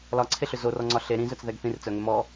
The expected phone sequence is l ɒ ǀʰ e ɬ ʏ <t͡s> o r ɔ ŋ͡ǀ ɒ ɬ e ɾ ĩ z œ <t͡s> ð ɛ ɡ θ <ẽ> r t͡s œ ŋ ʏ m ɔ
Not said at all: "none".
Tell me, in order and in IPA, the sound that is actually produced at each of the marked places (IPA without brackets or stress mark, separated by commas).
z, t͡s, ĩ